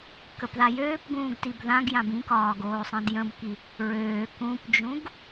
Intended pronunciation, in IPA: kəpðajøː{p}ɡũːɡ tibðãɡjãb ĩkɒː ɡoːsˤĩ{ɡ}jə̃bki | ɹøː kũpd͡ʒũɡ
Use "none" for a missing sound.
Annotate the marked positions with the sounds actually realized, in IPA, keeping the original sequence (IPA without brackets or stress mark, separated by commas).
p, d